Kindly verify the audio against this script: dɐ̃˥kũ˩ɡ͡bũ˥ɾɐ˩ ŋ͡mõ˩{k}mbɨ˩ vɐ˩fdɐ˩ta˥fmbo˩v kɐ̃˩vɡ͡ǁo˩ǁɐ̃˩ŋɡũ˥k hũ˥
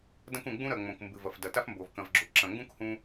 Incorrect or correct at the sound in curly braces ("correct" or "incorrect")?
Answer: correct